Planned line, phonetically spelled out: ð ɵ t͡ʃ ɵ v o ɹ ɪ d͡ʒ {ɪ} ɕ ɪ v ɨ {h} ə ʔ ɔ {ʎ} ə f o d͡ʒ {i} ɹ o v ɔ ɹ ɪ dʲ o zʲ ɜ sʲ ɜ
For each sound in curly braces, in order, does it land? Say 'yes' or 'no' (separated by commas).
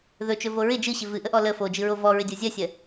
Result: no, no, no, no